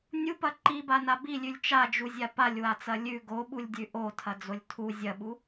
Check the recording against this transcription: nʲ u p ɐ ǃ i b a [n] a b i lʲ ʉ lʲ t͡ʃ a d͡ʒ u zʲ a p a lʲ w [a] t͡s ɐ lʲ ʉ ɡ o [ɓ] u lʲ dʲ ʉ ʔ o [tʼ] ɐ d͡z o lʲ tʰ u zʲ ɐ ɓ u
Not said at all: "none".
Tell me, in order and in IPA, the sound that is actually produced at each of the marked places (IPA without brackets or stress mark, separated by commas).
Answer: n, a, ɓ, tʰ